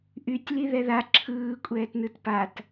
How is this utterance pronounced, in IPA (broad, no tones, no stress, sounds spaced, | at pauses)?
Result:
ʔ y tʲ l i ð ɛ ð a ǁʰ ɯː kʷʼ ɛː t n ɯ t p a t